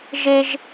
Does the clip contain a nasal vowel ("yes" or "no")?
no